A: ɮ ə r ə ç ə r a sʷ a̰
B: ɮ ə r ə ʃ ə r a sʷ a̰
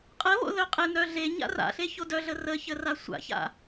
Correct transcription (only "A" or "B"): A